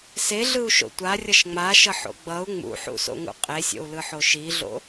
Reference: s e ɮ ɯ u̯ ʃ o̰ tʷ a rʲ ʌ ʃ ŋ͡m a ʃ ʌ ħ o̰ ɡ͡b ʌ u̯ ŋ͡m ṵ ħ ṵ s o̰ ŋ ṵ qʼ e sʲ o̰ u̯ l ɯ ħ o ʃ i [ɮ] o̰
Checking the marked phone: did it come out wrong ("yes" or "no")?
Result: no